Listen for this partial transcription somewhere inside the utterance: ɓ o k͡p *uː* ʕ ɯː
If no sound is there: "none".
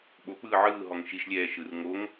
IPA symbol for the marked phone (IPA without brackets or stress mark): ɯː